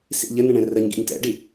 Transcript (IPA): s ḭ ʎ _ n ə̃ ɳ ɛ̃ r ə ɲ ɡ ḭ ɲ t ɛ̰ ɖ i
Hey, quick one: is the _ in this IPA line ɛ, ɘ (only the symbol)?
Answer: ɘ